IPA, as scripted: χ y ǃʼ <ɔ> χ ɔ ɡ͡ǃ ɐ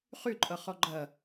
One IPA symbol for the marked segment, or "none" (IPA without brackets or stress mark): ʌ